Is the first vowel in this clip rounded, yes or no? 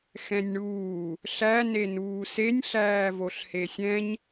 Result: no